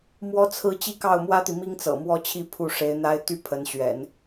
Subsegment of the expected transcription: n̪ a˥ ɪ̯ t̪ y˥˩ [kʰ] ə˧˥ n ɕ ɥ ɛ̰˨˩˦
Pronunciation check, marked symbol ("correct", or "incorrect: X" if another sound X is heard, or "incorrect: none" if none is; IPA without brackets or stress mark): incorrect: pʰ